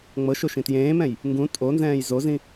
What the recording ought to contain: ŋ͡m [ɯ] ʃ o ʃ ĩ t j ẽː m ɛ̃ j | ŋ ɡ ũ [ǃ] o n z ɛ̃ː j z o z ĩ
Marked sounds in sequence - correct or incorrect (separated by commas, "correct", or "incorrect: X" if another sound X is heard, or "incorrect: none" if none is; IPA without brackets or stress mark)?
incorrect: ɤ, incorrect: tʼ